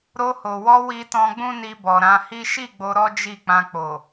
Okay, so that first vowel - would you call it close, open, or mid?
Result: mid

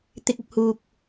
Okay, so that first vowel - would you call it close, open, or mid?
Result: close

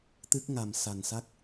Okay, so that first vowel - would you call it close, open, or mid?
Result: close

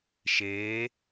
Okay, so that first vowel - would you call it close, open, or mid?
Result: mid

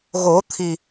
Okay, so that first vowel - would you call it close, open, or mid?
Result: mid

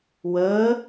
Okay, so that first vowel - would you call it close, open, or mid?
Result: mid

